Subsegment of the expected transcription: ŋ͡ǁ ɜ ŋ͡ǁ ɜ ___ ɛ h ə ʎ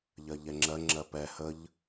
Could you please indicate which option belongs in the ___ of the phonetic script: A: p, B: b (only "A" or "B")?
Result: A